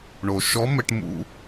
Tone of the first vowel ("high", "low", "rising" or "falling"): low